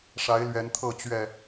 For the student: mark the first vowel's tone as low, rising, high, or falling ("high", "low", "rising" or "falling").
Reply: rising